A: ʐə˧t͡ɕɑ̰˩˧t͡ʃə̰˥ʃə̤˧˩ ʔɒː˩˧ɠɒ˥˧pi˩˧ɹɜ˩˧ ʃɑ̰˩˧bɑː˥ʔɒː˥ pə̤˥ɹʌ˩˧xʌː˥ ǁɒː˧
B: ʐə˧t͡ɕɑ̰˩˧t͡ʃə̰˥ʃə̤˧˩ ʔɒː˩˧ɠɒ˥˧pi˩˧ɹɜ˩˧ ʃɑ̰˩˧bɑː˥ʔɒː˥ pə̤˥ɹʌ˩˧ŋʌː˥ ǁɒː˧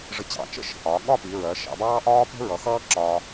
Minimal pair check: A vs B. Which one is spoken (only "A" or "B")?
A